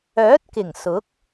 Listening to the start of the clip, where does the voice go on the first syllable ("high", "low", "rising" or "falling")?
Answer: rising